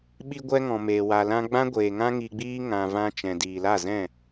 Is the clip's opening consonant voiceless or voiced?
voiced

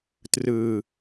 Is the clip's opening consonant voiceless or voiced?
voiceless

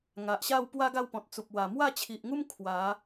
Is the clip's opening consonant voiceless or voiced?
voiced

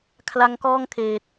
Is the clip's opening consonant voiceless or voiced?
voiceless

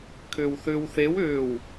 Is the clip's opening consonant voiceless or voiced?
voiceless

